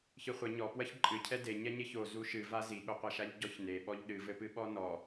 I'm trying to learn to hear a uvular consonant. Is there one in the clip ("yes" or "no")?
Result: yes